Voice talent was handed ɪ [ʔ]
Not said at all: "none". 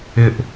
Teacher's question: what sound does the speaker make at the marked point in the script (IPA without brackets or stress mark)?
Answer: ʔ